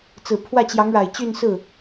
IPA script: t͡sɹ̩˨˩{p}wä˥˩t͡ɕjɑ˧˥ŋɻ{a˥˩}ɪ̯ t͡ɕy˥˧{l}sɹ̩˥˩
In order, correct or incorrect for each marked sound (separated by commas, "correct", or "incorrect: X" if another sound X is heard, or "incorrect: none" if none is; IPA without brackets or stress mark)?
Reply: incorrect: pʰ, incorrect: a˨˩, incorrect: n